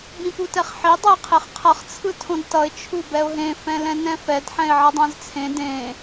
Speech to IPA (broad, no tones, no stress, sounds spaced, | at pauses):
b ĩ p u t ɛ χ ħ i dˤ ɛ ɪ̯ qʰ e χ qʰ ʌ χ t͡sʰ ɯ tʰ õ d t ʌ ɪ̯ t͡ʃʰ u b ɛ ʊ̯ ɦ ẽ f ɛ̃ l ɛ̃ n ɛ̃ f ɛ d ħ ɛ̃ ɪ̯ ʕ ʌ dˤ ã z t͡sʰ ẽ d ẽ